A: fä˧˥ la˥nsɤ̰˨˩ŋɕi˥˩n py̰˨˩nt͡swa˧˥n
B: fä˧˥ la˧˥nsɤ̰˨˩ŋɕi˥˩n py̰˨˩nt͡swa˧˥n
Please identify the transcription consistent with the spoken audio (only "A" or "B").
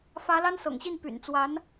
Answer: A